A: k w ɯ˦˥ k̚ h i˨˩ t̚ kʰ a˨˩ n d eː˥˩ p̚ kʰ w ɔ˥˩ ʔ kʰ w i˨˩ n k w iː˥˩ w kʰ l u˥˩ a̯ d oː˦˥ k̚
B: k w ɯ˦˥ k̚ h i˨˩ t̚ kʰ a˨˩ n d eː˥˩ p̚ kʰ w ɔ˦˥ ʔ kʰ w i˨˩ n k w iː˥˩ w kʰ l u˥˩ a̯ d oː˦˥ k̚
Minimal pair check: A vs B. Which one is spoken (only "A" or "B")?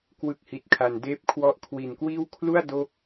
A